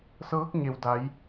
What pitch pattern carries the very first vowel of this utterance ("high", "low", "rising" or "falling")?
rising